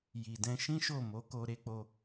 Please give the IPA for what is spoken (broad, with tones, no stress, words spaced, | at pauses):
ji˨dɛ̃˧ʃĩ˦ ʃo˦˨ mo˨˦ko˧ ɾe˦ k͡po˧